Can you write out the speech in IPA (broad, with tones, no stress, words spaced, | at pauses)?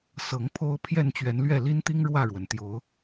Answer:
sɤ˨˦ŋpʰo˦ʊ̯ pʰjɛ˥˨nt͡ɕɥɛ˨˦nlɥɛ˥˨ li˦nt̪i˦ŋ ɻwä˥˨ɻwə˩nt̪jo˨˦ʊ̯